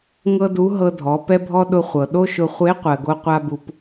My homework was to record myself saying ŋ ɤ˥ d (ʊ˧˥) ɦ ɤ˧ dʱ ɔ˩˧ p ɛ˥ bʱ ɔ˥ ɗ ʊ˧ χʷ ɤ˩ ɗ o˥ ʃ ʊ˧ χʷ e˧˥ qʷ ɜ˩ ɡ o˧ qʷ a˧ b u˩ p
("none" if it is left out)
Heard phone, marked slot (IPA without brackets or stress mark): u˧˥